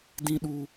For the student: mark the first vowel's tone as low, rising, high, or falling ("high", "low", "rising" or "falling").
high